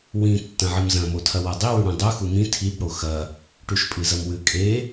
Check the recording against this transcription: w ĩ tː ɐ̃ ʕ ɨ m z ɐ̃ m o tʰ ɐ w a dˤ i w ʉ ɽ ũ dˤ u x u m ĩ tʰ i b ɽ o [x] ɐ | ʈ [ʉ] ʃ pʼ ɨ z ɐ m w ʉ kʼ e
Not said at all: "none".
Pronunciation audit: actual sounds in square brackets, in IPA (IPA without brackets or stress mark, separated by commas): x, ʉ